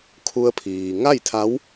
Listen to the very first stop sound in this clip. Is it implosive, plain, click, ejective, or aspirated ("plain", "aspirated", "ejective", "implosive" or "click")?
aspirated